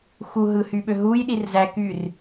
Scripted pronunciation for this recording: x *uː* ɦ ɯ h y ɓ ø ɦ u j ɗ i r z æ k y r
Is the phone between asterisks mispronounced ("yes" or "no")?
yes